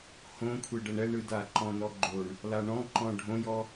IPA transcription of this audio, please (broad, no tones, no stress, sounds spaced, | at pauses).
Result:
h õ kʷʰ e ɖ ɤ ɳ ɛ ɳ ɯ d a ǃ ɔ̃ n ɔ ɡ͡ǃ o ɳ | l a ɳ ɔ̃ ǃ ɔ̃ ɖʱ õ j ɔ